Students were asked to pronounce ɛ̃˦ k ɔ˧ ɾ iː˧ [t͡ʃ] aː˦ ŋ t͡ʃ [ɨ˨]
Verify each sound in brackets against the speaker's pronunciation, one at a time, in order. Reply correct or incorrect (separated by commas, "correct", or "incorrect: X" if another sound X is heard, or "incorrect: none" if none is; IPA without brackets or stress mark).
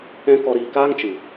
incorrect: k, correct